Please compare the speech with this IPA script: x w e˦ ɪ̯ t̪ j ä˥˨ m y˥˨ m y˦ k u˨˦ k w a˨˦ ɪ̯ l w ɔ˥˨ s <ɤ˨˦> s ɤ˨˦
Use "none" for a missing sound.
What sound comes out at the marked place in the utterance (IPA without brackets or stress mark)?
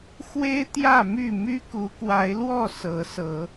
ɤ˨˦